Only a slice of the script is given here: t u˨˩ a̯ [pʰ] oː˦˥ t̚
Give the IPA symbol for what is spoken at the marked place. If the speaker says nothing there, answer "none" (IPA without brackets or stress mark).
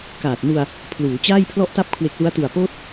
p